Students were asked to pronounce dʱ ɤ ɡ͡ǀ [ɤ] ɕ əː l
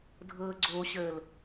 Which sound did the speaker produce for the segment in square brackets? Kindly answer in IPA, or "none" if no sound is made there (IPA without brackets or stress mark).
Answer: o